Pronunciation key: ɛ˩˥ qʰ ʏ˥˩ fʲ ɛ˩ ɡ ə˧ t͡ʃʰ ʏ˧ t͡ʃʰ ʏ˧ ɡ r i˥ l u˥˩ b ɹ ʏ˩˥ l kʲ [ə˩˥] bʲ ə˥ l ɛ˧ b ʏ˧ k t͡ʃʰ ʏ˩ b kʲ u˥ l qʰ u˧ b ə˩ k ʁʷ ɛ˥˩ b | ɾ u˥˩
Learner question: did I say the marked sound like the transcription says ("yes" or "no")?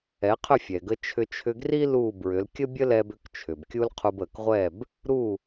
no